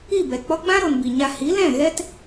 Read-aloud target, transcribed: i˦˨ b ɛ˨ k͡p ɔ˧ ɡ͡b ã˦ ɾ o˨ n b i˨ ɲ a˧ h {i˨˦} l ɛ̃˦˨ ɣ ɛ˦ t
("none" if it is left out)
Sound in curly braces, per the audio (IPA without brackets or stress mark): i˨˦